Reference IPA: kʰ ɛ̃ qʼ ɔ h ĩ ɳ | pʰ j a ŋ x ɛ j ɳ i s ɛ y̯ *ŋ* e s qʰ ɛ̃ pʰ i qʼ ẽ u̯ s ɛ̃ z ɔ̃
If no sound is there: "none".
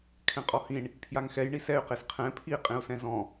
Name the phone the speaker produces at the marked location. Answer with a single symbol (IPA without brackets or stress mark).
q